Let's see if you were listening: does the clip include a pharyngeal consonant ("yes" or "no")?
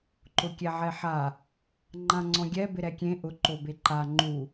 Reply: yes